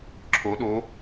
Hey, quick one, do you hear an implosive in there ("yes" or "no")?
yes